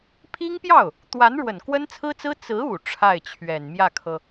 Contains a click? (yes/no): no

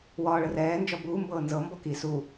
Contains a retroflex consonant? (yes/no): yes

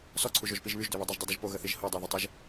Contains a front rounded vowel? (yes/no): yes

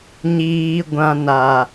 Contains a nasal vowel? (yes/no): yes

